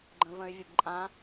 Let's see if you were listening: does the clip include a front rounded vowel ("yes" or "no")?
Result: yes